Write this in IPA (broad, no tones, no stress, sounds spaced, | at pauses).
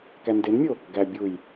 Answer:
k æ n d e n mʲ o | ɡ æ bʲ u j